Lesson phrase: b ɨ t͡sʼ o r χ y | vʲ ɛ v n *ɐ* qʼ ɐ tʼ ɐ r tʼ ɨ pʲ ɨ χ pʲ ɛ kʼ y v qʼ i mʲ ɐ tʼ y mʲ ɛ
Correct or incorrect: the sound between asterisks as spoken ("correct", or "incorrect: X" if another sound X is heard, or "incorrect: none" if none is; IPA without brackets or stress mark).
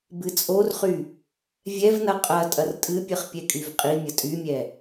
correct